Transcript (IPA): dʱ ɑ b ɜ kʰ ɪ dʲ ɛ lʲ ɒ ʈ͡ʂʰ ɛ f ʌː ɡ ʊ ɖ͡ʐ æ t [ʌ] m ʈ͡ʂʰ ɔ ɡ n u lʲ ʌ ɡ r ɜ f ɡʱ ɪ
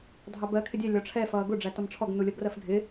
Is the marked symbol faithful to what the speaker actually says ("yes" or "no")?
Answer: yes